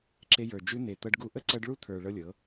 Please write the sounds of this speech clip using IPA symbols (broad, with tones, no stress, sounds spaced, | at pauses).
ǁ e˧ j ə˞˨ d͡ʒ ʉ˧ n̪ e˨ t̪ ɤ˧ ɖ ɡ u˧ ʔ ə˦ ǀ ɤ˧ ɖ ɭ u˦ t̪ʰ ə˞˨ ɭ ɤ˦ lʲ ɤ˨˦